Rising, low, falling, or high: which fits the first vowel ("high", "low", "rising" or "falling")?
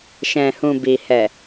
low